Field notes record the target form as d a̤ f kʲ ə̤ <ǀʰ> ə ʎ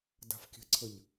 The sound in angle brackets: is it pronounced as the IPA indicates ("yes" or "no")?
yes